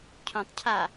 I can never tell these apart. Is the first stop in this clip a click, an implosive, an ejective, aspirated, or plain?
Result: aspirated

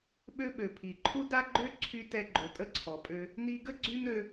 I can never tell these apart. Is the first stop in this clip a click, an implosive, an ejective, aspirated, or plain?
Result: implosive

